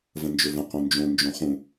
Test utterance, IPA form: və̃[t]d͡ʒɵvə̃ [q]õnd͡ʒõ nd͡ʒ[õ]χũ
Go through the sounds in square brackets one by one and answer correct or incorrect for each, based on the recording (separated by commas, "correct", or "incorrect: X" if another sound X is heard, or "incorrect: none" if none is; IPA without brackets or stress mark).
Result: incorrect: n, correct, correct